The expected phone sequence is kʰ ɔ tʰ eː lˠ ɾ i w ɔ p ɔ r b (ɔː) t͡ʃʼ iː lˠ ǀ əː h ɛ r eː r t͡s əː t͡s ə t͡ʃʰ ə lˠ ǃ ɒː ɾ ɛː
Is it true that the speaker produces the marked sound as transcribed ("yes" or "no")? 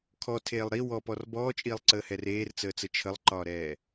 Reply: yes